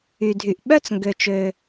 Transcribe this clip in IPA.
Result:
y˩ dʱ y˩ ʔ ɓ œ˦ t͡s ŋ ɡ ø˩ t͡ʃ ø˩

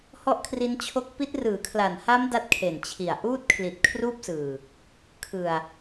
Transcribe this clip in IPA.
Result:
h ɔ˥˩ ʔ kʰ r i˦˥ n t͡ɕʰ o˦˥ k̚ p i˦˥ t̚ r ɯː˩˦ kʰ l a˨˩ n h a˦˥ m d a˥˩ t̚ kʰ e˨˩ n t͡ɕʰ i˨˩ a̯ ʔ uː˥˩ t̚ kʰ l i˨˩ t̚ kʰ r uː˥˩ p̚ s ɯː˨˩ | kʰ ɯ˨˩ a̯

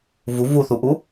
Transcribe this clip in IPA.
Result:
v u v u θ u ʔ u

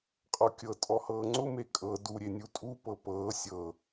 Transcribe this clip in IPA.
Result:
qʼ ɔ kʲ ɤ tʼ ɔ h ɤː ŋ͡ǀ ʊ m e kʼ ɤ d u ɾʲ e nʲ u tʼ u p ɤ p ɤː sʲ ɤ

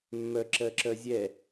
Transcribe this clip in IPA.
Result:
mː œ ǁ ɜ ǁ œ zʲ ɛ

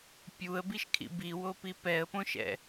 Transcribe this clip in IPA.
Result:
pʲ u ə̯ b i ʃ kʰ ḭ b i w o p i p ɛ ə̯ p õ ʃ ɛ̰

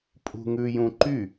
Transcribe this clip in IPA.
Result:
pʼ ṳ ŋ ʉ j ũ ǃ y

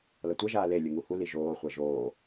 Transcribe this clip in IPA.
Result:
l ʌ tʷ ɛ ʒ aː l e lʲ ɯ ŋ u h u l i ʒ oː χʷ ɛ ʒ oː

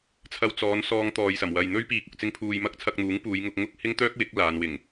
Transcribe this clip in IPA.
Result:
t͡sʰ ɐ˧ w t͡s ɔː˨˧ n s ɔː˧ ŋ t̪ ɔː˨ j s ɐ˨˩ m w ɐ˨ j n̪ ɵ˥ ɥ p iː˨ k̚ ʊ˨ k̚ t͡s ɪ˧ ŋ pʰ uː˨ j m ɐ˥ k̚ t͡sʰ ɐ˧ k̚ n̪ uː˨˥ ŋ p uː˨˧ j ŋ ʊ˧ k̚ ŋ ʊ˥ k̚ h ɪ˥ ŋ t̪ œː˥ k̚ w ɪ˨˥ k̚ l aː˨˧ n w ɪ˨˩ ŋ

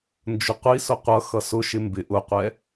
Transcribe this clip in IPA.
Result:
n d͡ʒ ʊ qʷ i s ʊ qʷ ʌ x ʌ s ʊ ʃ ɪ m b ɪ ʔ ʊ qʷ ɛ

